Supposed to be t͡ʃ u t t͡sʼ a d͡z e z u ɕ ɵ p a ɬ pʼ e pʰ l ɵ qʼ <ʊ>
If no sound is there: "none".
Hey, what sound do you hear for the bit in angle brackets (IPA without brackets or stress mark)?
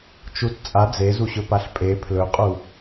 u